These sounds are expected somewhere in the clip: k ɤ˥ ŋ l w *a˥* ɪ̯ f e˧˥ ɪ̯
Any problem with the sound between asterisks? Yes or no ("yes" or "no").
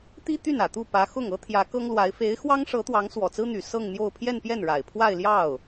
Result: yes